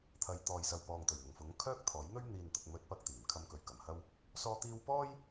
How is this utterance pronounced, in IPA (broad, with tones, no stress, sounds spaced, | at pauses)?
t̪ʰ ɐ˨˧ j t̪ ɔː˨ j s ɐ˨ w p ɔː˨ ŋ t̪ ɵ˨˩ ɥ n̪ ʊ˨˩ ŋ f ʊ˨˥ ŋ kʰ œː˥ k̚ t̪ʰ ɔː˨˥ j n̪ ɵ˥ ɥ n̪ iː˨ n t̪ ʊ˨ k̚ m ɵ˨˥ t̚ p ɐ˨ k̚ t̪ iː˨˩ m kʰ ɐ˧ m k ɵ˨ ɥ k ɐ˨˩ m h ɐ˧ w | s ɔː˥ t̪ iː˥ w p ɔː˥ j